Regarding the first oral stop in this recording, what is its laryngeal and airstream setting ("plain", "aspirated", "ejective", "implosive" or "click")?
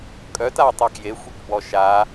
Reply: ejective